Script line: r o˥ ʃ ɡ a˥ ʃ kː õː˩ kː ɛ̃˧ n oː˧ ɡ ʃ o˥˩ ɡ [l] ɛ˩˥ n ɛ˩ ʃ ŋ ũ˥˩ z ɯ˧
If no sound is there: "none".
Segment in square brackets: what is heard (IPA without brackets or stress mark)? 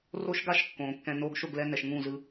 l